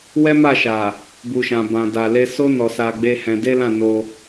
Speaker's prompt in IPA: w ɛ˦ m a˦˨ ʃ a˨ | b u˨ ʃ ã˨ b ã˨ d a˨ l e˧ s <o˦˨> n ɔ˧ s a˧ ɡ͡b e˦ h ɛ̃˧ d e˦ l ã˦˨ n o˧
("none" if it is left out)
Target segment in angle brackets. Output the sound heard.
o˦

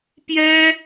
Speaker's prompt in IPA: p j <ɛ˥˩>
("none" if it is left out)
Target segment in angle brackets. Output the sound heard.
ɛ˥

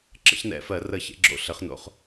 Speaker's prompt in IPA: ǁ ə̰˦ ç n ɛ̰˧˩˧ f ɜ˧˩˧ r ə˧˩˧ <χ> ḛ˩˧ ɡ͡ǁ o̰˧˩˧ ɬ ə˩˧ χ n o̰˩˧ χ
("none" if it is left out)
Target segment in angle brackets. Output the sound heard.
ç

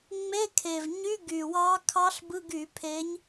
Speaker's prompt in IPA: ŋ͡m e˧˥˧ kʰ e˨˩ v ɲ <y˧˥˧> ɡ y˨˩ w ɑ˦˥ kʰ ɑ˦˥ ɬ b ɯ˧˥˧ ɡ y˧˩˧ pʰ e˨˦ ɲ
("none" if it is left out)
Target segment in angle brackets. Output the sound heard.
y˧˥˧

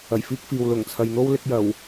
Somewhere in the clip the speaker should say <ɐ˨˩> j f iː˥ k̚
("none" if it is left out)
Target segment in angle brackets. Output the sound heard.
ɐ˨˩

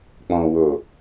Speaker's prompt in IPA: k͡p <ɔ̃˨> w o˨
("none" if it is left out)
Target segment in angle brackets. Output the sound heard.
ɔ̃˨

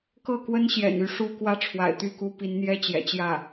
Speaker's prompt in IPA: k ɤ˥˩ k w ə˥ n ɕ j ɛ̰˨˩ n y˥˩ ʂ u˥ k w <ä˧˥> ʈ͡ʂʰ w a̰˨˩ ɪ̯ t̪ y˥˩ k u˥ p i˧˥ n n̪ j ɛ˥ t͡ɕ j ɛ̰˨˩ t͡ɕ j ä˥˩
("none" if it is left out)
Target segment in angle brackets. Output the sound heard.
ä˥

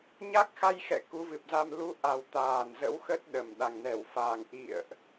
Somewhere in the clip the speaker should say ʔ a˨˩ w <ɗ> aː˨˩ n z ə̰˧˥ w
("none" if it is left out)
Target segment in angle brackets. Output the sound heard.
t̪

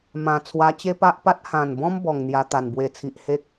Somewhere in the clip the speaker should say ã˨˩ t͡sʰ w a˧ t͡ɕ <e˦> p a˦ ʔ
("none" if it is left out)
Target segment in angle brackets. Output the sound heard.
e˦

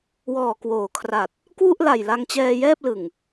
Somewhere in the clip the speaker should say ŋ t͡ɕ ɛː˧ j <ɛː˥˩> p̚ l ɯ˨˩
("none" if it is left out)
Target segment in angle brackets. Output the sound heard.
ɛː˥˩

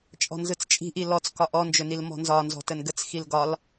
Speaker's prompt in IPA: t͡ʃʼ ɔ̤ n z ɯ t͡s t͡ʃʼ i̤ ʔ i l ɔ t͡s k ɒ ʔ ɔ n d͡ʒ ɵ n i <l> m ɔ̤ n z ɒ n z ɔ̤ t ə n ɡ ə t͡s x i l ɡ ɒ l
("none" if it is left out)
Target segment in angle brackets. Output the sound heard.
l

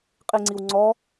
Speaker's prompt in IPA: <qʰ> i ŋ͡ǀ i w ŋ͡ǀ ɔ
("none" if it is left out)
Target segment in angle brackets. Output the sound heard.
qʼ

